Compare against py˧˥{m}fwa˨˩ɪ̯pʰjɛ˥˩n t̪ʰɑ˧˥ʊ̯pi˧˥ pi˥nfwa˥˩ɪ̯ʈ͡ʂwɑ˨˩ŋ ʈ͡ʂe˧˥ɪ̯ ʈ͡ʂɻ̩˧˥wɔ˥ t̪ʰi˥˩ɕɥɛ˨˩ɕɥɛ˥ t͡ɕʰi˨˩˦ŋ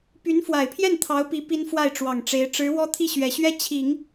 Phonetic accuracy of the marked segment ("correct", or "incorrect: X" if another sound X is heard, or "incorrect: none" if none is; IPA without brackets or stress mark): incorrect: n